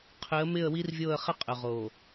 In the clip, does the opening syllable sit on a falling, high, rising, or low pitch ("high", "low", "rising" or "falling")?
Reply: rising